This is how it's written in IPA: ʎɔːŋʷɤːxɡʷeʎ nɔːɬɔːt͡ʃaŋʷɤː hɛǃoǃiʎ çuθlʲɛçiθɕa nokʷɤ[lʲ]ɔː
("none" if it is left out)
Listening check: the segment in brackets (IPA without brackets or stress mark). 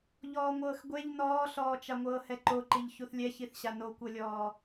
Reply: lʲ